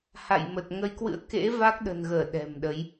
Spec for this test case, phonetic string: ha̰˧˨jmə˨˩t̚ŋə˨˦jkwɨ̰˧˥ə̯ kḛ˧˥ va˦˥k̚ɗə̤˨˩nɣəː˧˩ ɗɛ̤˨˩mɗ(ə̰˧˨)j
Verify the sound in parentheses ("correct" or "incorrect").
incorrect